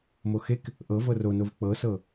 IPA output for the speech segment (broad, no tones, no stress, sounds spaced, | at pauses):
m o x e k | ʔ ɤ v ɤ r o n o v k͡p ɤ s ɤ